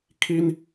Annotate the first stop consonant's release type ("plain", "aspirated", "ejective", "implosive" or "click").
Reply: aspirated